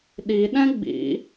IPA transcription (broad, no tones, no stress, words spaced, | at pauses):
ɗiɗɛ̃ ɡ͡bḭ